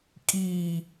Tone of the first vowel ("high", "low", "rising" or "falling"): low